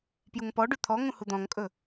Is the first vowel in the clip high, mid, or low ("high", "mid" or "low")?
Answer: high